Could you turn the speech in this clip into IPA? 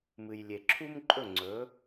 mɨ˩jlʲe˩ǁʰu˥mǃʼɵ˥˩ ŋ͡ǀɵ˩˥

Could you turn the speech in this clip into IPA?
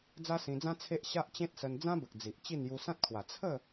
d͡za˦sĩ˧d͡zã˦ t͡sʰe˦ʔ ɕa˦ʔt͡ɕẽ˦t̚sə˧n d͡zã˦bə˨k̚ d͡zi˨ʔt͡ɕi˥˧n ju˧sã˦t̚kʰwa˨˩ t͡sʰə˥˧

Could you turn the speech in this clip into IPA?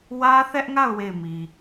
wä˦θɛ˦ʔŋa˦˨ʊ̯ we˦˨ɪ̯mi˨

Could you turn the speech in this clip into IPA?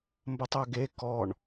mbətˤɵɡe kɔɳ

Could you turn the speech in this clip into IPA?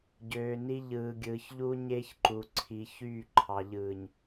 ɟøː˨ni˦ ʎɯː˨ɡʲɯː˨çʎu˦ ɲe˦çǃu˨ǀʰi˨ çyː˦˨ǃʰɑ˨ʎɯː˨ɲ

